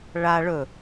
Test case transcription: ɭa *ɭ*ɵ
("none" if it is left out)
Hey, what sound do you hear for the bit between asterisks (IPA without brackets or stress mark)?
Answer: ɭ